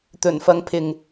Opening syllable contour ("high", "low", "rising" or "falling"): low